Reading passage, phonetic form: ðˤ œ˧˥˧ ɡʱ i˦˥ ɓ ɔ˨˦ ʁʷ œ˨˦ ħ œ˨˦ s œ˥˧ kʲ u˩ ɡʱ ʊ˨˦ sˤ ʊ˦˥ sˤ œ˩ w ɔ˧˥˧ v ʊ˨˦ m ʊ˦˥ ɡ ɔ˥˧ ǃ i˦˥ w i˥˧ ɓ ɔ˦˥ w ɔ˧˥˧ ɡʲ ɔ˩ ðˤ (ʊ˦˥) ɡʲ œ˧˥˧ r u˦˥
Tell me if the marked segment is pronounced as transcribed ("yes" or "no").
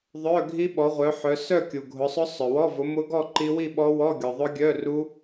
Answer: yes